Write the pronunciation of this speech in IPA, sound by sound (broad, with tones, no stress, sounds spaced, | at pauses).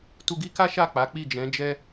t u˧ ɡ i˦ k a˦ ʃ a˦˨ k͡p a˨˦ k͡p i˦˨ d͡ʒ ɛ̃˨˦ d͡ʒ ɛ˦